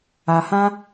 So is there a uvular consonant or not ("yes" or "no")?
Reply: no